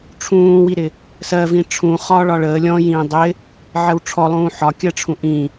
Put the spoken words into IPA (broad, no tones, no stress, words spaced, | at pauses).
ʈ͡ʂʰũːwiɾɪ | sɜvĩ ʈ͡ʂʰũ χɒːɭɒɭəː lʲɔ̃ jĩːdˤɪ | ʕɜwʈ͡ʂʰɔlˠũː ħɒkʲɜʈ͡ʂʰũ ʔĩ